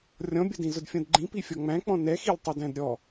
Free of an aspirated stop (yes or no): yes